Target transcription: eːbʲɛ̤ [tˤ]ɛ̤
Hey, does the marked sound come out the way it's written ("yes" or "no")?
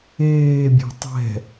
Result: yes